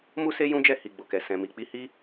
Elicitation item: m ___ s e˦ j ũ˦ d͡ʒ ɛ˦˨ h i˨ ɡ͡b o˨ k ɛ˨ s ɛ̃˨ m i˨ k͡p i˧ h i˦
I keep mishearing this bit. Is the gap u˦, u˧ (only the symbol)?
u˦